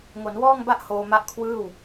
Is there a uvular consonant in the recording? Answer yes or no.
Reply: no